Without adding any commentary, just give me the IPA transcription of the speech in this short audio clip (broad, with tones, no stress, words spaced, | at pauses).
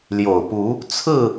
ljo˨˩ʊ̯pu˨˦ | t͡sʰɹ̩˥˨